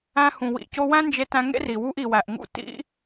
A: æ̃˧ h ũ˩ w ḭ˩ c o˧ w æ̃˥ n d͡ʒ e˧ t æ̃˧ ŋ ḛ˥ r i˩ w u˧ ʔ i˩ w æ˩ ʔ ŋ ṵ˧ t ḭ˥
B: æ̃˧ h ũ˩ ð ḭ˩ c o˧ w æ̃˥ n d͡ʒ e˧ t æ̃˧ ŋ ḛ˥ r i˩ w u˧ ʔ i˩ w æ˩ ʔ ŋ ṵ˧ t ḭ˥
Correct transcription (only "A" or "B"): A